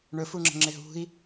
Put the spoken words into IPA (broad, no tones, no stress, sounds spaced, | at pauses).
ɳ ɵ f u ŋ͡ǁ ə̤ ŋ͡ǁ e ɦ ṳ i̯